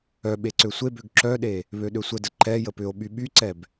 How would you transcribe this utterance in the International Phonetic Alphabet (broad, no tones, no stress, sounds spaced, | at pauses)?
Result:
œ ɓ e ǀ ø sʷ e b ø ɡ ǁ œ ɗ e | β ø ɗ ø sʷ ə d ə ǃ ɛ j ə p ʏ o̯ ɓ y ɓ y ǀ ɛ b